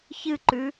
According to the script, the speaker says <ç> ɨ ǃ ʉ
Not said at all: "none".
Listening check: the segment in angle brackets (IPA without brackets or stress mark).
ç